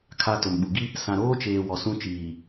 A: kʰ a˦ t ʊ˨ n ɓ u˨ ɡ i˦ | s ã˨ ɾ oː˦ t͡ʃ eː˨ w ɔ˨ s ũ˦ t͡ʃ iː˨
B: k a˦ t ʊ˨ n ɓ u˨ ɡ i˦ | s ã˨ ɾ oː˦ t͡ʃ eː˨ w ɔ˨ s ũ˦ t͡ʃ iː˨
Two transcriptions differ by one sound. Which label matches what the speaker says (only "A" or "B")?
A